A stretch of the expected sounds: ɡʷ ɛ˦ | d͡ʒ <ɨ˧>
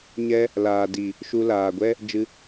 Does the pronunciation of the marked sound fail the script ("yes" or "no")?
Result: no